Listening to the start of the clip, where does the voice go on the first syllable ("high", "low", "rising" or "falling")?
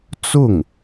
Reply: falling